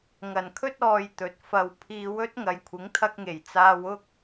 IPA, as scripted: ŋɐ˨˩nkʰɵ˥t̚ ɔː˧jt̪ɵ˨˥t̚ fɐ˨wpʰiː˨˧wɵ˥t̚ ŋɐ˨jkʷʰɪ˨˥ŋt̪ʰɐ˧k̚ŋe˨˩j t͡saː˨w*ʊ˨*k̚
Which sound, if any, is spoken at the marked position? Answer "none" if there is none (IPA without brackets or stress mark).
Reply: ʊ˧